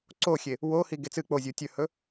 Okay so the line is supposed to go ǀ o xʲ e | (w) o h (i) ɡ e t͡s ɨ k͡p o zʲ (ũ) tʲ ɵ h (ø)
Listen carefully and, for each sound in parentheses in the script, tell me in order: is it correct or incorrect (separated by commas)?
correct, correct, incorrect, incorrect